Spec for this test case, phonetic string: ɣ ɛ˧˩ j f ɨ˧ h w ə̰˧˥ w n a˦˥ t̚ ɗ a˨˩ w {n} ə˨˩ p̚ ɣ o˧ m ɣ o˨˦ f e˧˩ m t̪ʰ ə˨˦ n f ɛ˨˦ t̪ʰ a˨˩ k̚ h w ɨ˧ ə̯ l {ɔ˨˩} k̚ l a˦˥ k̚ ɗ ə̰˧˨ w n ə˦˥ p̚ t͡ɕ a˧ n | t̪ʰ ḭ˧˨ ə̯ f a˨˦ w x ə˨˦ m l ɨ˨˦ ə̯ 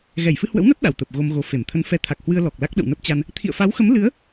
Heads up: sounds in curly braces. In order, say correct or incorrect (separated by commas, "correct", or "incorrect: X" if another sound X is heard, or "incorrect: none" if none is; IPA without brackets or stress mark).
incorrect: t̪, correct